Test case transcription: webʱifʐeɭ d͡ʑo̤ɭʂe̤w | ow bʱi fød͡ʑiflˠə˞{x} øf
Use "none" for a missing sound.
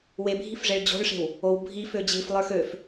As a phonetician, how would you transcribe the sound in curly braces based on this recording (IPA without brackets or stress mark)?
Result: x